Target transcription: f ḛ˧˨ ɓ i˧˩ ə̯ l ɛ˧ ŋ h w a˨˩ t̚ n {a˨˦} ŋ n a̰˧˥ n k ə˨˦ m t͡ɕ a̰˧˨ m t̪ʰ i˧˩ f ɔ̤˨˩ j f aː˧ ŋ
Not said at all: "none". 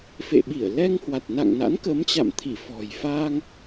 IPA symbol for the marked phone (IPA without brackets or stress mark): a̰˧˨